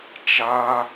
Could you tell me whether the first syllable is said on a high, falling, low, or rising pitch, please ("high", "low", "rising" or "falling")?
high